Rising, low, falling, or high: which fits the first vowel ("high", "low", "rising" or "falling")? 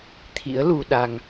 rising